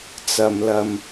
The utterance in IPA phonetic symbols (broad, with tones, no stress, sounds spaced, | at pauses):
t͡s ɐ˧ m l ɐ˧ m